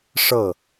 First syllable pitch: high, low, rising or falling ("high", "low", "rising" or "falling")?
falling